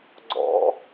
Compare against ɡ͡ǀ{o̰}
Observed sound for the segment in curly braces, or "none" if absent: ɔ̰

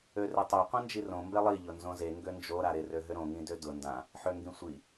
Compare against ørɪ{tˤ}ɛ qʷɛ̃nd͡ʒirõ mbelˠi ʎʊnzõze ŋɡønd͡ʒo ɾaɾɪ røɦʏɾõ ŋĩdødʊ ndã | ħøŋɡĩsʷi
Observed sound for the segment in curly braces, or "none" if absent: tˤ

